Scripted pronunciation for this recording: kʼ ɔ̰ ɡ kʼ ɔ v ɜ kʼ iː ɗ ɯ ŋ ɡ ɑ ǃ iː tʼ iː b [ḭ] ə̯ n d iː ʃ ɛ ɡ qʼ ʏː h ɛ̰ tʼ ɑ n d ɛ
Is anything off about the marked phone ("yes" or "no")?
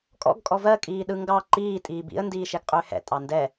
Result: no